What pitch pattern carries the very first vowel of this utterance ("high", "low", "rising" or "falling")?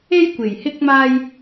high